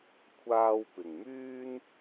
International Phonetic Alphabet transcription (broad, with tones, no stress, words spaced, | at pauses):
kʷʰaː˧wpɪ˨ŋmyː˥n